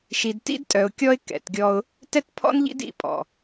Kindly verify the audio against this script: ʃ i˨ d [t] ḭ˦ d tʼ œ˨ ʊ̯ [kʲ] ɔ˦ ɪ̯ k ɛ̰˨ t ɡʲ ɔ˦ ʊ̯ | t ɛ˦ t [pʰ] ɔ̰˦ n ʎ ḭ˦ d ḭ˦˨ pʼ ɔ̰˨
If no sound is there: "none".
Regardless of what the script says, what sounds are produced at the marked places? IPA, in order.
t, kʲ, pʰ

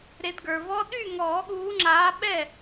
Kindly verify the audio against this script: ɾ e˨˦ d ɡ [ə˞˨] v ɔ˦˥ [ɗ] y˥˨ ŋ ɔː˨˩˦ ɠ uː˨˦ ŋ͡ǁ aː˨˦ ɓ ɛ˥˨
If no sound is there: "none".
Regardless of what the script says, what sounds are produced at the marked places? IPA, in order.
ə˞˨, ɗ

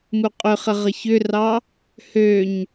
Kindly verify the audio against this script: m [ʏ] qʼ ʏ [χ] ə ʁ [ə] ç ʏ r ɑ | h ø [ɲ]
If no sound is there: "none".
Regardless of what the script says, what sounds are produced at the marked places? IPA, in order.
u, χ, ə, ɲ

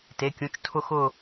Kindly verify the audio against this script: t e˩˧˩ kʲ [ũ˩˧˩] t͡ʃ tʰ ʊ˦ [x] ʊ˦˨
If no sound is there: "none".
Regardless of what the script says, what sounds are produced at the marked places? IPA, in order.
ũ˩˧˩, x

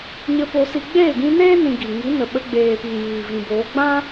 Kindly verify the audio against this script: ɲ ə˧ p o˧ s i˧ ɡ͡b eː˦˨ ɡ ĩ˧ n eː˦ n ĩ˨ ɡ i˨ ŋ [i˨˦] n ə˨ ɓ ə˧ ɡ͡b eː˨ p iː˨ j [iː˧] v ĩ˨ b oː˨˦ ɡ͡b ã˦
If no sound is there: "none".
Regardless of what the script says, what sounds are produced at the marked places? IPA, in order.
i˨˦, iː˨

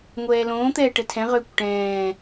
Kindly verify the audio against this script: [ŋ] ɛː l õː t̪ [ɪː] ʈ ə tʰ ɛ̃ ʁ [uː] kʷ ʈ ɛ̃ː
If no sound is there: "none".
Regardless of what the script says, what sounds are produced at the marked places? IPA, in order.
ŋʷ, ɛː, ʏː

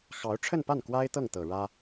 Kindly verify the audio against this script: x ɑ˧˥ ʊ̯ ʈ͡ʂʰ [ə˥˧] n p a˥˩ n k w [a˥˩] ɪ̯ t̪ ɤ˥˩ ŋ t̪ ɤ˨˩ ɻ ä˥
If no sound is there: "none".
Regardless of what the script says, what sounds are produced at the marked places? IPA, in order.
ə˥˧, a˥

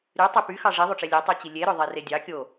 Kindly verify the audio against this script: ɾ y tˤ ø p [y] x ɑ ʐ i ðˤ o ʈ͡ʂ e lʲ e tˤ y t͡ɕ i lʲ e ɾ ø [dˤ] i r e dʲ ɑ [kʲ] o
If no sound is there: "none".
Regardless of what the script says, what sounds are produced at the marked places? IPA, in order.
y, ðˤ, kʲ

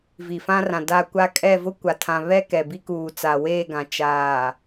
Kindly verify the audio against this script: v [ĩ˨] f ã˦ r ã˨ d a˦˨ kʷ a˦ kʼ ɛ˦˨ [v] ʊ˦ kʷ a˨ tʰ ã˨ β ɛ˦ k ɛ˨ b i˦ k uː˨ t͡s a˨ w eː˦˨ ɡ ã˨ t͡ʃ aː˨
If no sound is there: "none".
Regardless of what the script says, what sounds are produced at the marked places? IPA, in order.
i˨, v

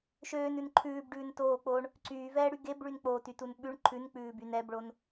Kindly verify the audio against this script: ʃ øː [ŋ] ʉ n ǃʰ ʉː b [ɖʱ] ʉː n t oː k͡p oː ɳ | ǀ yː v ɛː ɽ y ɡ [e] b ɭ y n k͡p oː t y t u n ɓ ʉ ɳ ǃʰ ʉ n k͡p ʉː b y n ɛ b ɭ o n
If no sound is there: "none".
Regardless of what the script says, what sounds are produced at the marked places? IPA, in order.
n, ɖ, e

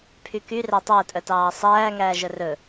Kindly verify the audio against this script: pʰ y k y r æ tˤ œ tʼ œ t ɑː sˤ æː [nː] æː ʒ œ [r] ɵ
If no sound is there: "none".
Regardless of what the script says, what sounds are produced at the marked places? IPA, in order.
ŋ, r

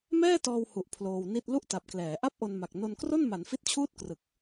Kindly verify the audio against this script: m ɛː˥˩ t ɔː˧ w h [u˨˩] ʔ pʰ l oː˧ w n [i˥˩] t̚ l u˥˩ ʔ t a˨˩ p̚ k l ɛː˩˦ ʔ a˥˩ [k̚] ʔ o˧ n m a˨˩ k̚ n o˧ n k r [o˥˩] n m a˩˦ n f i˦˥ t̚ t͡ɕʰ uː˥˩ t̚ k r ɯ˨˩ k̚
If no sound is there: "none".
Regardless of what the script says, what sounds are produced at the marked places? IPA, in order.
u˨˩, i˥˩, p̚, o˥˩

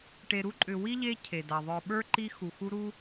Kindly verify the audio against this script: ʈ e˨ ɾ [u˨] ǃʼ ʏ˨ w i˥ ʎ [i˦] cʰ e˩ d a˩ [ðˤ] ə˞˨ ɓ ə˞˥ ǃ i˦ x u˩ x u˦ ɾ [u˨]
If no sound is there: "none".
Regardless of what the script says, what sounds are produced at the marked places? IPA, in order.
u˥, e˦, ðˤ, u˥

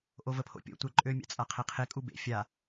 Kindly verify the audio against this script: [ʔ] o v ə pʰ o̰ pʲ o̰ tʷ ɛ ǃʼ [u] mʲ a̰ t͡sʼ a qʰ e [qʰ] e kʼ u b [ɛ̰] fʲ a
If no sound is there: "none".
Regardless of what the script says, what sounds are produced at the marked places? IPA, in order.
ʔ, ø, qʰ, ḛ

